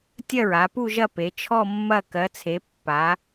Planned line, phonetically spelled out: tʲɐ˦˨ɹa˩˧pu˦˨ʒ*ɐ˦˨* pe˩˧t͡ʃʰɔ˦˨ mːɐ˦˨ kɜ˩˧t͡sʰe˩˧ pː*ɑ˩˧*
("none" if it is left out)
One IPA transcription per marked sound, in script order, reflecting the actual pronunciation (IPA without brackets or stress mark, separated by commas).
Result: ɐ˦˨, a˩˧